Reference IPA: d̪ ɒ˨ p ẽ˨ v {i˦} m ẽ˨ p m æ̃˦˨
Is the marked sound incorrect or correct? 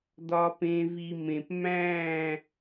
incorrect